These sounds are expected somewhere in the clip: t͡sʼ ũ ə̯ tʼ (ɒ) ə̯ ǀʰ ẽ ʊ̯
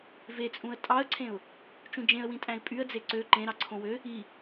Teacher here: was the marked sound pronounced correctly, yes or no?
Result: no